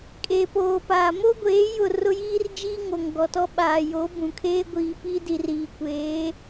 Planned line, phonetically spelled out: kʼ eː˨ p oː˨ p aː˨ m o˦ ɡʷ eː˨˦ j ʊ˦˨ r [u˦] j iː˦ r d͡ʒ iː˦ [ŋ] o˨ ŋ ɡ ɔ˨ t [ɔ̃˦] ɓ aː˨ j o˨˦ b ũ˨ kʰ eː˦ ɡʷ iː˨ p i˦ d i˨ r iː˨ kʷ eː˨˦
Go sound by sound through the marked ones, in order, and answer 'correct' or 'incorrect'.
incorrect, correct, incorrect

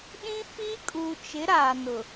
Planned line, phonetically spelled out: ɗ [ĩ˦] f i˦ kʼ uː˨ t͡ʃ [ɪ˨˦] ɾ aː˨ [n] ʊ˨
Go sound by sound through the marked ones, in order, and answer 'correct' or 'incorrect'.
correct, correct, correct

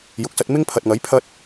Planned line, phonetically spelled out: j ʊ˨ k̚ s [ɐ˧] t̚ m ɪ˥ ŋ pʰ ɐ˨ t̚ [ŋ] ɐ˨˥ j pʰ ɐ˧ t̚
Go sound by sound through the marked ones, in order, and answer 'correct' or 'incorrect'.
correct, correct

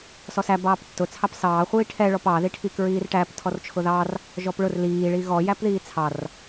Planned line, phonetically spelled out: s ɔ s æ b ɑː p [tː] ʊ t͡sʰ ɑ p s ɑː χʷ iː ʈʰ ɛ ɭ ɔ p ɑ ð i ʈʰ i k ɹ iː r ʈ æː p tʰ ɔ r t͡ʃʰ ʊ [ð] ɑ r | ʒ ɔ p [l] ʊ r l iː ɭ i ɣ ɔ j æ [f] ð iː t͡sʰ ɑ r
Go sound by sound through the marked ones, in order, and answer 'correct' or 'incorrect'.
correct, correct, incorrect, incorrect

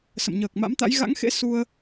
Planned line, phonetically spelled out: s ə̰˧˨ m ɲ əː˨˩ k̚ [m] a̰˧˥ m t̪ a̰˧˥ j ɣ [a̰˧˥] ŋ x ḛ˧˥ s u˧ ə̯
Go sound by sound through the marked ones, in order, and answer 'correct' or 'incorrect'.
correct, correct

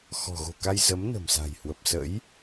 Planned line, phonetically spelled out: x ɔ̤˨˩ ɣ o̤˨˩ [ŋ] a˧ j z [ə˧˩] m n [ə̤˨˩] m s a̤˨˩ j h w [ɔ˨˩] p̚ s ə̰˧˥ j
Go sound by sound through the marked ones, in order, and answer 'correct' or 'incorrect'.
incorrect, incorrect, correct, incorrect

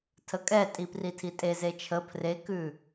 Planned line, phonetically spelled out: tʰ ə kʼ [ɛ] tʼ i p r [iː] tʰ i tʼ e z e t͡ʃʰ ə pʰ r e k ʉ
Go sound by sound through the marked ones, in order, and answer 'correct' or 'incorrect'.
correct, incorrect

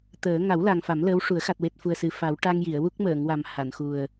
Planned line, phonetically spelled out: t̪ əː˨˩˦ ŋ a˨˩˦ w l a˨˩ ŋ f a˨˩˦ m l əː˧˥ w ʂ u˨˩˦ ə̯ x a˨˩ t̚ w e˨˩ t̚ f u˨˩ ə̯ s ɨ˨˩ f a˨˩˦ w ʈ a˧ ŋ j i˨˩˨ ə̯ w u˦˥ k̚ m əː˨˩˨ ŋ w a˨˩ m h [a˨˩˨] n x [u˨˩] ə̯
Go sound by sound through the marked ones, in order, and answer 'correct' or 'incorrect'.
correct, correct

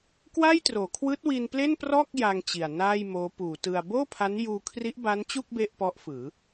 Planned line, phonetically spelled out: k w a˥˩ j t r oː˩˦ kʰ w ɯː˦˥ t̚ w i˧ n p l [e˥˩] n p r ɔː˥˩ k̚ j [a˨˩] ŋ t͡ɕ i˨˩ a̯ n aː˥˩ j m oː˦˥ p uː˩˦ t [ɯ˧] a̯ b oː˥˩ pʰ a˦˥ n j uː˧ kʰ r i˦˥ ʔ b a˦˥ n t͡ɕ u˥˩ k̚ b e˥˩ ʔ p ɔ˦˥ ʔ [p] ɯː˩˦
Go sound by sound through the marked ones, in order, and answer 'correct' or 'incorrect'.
correct, incorrect, correct, incorrect

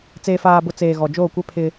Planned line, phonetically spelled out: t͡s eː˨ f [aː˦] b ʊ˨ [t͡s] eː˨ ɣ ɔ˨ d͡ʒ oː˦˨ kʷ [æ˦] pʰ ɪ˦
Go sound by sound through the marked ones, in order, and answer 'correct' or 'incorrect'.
incorrect, correct, incorrect

